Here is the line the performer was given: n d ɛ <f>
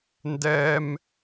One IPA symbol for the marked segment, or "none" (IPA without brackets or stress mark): m